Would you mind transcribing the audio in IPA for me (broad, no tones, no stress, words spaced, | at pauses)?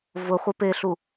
vʊ χʷepeɬu